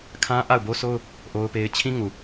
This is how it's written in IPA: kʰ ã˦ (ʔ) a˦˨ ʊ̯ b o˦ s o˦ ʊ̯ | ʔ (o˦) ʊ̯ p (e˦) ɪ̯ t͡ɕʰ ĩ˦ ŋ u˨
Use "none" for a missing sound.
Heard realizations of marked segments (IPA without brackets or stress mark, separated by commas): ʔ, o˦, e˦